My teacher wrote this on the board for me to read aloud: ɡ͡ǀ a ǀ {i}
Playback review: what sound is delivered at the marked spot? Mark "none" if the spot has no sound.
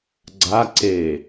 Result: e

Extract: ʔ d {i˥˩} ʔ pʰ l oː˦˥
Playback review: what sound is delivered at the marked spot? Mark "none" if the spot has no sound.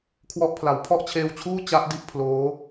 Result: i˥˩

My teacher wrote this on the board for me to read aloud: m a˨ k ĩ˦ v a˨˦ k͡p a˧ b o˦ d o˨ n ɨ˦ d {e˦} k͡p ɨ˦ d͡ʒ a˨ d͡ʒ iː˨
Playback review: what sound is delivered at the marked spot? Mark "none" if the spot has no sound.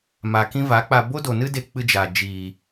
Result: e˦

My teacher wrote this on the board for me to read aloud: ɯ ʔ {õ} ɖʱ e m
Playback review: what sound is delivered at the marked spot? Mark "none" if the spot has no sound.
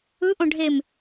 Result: õ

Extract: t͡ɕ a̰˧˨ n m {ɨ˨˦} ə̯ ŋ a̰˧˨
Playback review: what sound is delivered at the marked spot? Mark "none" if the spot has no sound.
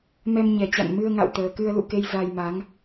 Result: ɨ˧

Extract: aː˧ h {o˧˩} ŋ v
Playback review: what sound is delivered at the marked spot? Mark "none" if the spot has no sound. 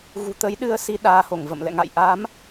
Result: o˧˩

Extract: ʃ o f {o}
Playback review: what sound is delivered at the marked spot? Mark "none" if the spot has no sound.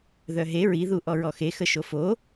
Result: o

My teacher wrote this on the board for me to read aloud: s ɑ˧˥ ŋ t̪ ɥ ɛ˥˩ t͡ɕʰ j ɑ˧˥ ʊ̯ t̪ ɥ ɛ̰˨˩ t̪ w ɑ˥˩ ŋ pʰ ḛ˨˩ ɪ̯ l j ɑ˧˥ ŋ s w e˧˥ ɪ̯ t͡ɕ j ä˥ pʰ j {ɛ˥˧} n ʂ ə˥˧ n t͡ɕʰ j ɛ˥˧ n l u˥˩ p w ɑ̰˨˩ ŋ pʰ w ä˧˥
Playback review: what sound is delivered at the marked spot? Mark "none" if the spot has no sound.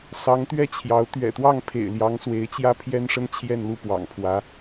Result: ɛ˥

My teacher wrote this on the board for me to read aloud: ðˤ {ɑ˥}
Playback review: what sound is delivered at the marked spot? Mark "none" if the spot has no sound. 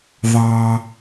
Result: ɑ˥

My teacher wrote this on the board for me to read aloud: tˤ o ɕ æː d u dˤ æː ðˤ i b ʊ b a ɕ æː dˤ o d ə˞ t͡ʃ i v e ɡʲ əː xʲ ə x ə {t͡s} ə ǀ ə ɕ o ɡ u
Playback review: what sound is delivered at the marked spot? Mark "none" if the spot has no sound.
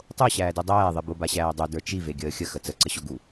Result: t͡s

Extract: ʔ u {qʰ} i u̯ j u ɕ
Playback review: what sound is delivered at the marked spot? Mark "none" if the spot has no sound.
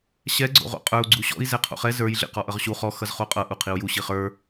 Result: qʰ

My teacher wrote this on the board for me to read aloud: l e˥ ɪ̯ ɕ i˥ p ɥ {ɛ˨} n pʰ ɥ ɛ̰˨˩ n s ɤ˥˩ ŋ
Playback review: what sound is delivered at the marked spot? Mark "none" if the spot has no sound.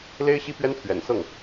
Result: ɛ˥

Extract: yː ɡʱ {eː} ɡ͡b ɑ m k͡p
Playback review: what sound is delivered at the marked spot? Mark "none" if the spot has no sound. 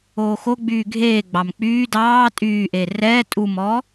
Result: eː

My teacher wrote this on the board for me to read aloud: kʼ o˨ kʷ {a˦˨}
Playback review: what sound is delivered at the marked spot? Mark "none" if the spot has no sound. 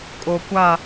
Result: a˦˨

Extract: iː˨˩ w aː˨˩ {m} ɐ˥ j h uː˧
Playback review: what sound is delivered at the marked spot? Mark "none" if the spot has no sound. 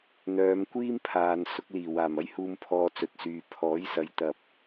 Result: m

